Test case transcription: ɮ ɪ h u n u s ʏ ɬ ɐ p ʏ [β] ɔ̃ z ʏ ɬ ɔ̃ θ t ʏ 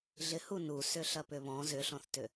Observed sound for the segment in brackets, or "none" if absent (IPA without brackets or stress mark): β